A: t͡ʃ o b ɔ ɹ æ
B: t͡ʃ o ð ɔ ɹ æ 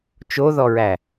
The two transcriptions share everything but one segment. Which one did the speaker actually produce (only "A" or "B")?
B